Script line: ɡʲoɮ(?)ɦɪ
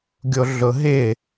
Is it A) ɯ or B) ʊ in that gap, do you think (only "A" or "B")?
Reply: B